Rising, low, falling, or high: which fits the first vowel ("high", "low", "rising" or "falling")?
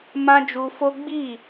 high